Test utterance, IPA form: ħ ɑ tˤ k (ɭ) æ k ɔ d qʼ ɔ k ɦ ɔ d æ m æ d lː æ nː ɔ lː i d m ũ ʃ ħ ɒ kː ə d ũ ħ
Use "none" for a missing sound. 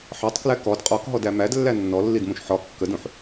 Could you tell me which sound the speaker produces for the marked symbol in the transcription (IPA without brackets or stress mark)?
l